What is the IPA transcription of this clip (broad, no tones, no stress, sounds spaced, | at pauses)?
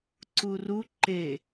ǀ u r u ǃ e